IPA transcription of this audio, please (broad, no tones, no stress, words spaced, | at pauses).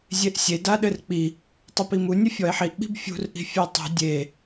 zʲeʔsʲe daɗɘrk͡pi | tˤɐpimu nʲɐfʲɔe̯ħiʔ ɓi̤bfʲṳr ʔi̤fʲetˤṳ dʲe